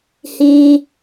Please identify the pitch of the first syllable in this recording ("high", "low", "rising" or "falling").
high